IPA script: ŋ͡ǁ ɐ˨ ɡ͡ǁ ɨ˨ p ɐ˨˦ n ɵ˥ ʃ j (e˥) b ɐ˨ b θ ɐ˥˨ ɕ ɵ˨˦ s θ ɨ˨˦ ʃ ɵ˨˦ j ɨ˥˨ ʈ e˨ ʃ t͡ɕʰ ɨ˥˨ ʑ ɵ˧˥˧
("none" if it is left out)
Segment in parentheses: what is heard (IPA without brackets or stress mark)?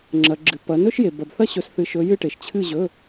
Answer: e˨